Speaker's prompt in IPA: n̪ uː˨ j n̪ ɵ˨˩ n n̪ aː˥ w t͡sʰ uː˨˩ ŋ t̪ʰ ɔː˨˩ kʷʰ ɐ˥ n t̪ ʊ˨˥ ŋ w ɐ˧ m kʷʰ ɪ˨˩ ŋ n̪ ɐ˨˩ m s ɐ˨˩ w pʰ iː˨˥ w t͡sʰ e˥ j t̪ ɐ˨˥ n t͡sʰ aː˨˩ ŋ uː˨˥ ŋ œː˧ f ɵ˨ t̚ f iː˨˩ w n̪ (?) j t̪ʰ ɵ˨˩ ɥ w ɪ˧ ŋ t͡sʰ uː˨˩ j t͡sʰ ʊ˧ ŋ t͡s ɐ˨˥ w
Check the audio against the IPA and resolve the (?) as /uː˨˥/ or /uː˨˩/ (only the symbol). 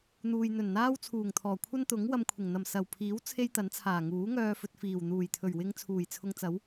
uː˨˩